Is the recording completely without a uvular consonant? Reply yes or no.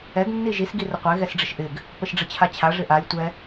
no